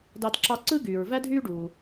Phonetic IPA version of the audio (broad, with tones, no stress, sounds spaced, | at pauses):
d ɑ˧ d ǁ ɑ˧ ǀ ɯ˥ ɡ yː˩ ɹ v æ˥ dʱ yː˥ ɖ uː˩